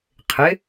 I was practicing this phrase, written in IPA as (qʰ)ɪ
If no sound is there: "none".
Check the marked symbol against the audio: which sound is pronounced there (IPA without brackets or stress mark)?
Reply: qʰ